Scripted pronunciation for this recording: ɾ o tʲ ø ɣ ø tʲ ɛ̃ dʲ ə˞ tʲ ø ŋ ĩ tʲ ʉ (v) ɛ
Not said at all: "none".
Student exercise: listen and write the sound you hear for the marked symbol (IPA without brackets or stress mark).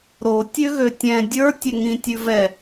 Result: v